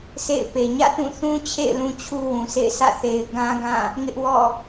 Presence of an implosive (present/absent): absent